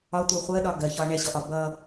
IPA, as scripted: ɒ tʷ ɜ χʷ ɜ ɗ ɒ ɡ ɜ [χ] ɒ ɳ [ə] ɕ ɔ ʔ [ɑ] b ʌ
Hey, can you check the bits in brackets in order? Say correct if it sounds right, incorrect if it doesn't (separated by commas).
incorrect, incorrect, incorrect